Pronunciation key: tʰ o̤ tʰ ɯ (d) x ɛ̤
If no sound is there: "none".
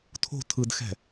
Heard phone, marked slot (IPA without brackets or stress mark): d